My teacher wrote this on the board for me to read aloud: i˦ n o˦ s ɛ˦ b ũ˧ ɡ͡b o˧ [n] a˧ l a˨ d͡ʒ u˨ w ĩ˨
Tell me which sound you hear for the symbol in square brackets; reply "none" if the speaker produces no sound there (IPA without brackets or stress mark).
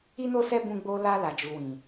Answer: l